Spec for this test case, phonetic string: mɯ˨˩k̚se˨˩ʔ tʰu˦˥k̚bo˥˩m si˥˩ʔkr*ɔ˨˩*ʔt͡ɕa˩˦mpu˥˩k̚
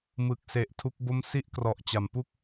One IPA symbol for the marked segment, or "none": ɔ˨˩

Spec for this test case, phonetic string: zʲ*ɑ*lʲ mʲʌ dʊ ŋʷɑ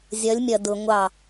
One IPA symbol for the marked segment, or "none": ʌ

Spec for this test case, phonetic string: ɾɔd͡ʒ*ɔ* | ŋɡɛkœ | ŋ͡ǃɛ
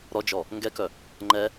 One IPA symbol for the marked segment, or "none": ɔ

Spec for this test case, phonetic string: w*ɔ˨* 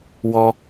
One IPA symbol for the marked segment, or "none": ɔ˦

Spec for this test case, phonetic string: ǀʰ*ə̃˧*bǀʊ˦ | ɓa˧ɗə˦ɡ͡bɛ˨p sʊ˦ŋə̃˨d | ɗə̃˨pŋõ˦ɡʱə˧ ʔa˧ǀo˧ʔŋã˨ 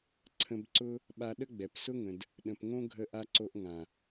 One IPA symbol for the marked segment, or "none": ə̃˧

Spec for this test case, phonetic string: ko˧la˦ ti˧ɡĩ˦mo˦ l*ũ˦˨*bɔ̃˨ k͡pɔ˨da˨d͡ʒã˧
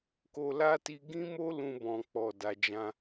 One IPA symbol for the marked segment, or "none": ũ˧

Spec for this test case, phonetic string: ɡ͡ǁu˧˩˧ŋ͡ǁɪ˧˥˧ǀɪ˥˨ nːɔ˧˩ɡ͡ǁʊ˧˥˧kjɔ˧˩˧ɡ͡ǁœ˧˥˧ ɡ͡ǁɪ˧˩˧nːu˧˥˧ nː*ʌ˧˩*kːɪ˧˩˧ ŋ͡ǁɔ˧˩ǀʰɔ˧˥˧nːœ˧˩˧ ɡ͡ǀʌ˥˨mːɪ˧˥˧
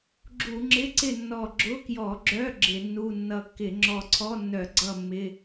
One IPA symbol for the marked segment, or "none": ʌ˧˩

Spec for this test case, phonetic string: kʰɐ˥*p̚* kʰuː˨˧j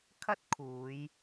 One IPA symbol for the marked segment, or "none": t̚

